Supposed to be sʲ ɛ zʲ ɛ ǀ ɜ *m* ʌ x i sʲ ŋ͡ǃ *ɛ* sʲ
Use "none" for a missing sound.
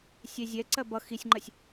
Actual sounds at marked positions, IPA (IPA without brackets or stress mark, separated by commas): b, ɜ